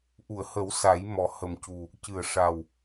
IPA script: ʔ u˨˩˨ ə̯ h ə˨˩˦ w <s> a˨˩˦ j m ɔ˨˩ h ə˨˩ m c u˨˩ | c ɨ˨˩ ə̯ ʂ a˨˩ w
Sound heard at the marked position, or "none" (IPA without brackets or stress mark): s